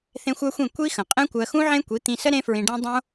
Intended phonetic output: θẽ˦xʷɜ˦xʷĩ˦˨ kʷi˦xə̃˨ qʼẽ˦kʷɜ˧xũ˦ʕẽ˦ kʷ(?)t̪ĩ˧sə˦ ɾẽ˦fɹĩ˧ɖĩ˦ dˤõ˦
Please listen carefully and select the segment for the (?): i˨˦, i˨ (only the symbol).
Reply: i˨˦